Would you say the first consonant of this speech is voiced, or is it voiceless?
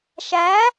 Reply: voiceless